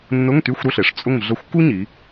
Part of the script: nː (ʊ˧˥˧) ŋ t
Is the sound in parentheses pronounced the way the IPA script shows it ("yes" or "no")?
yes